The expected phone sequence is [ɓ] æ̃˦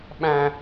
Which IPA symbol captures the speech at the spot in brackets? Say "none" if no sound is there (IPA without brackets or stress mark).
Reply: ɓ